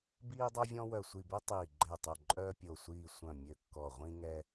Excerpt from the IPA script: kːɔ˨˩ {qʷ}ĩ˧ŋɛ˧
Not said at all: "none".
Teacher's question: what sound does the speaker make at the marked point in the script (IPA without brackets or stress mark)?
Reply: ʁʷ